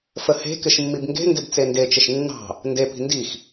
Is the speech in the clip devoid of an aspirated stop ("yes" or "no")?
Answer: yes